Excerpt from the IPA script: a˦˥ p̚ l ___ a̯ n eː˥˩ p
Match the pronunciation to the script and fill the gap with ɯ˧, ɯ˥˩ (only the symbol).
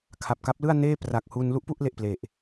ɯ˥˩